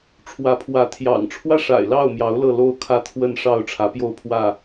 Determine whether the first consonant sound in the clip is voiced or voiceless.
voiceless